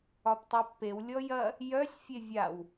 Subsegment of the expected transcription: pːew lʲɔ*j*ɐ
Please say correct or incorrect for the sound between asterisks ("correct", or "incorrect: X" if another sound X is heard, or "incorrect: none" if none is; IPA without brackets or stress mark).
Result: correct